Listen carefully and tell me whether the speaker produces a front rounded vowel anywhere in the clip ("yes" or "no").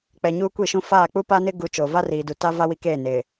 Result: no